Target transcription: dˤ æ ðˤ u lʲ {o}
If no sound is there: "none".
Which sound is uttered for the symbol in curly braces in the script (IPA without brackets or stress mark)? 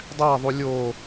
o